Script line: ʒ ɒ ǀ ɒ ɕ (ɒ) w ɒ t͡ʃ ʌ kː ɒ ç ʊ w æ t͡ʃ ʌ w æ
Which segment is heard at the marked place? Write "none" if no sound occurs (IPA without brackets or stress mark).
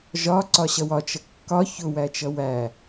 ʌ